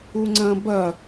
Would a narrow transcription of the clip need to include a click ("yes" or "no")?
yes